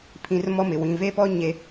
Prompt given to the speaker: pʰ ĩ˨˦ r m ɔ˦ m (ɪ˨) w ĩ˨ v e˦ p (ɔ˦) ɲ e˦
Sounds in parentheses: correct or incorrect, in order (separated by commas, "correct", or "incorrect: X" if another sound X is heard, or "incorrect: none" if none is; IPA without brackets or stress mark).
correct, correct